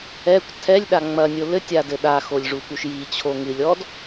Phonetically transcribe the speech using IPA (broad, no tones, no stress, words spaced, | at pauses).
ɛkʷ tʰɛlʲɗa ŋ͡mɐnʲo lɘtʲadɘ ɗaxolʲʐukuʃ jit͡ɕʰo ŋɨlʲɔd